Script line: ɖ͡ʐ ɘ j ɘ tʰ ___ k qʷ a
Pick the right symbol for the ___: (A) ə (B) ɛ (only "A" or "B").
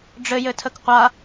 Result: A